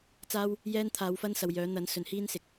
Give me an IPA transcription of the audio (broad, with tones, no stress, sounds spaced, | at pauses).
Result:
t͡s aː˥ w | j ɛː˥ n t̪ʰ aː˨˥ w f ɐ˥ n s ɐ˨ w j œː˨˥ n̪ ɐ˨˥ n s ɵ˨˥ n h iː˥ n s ɪ˨˥ k̚